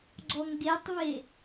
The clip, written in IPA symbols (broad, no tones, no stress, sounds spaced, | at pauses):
ɡ͡ǀ ɔ ŋ ɡ e tˤ v e